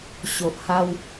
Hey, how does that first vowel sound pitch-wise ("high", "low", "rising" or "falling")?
low